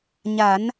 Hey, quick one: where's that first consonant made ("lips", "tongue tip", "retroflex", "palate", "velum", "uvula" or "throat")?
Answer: palate